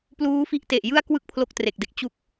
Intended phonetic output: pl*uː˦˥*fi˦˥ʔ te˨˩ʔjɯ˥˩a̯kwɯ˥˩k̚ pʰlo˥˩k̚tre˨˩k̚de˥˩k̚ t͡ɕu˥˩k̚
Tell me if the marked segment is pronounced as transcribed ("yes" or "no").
yes